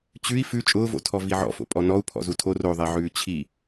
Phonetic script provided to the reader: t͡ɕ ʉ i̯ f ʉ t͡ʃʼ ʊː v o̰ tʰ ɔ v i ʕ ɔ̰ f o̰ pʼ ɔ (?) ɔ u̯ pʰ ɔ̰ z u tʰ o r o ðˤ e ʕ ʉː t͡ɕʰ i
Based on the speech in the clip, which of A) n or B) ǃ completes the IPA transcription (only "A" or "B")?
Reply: A